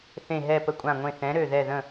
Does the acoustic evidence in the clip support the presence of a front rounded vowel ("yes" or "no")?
yes